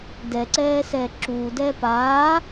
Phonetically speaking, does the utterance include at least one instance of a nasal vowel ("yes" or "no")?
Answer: no